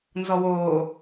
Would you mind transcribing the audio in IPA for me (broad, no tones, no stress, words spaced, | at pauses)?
nzɔwoː